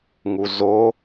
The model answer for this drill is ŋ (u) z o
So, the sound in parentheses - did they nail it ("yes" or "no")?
yes